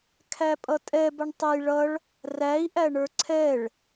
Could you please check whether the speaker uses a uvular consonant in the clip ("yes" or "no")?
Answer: no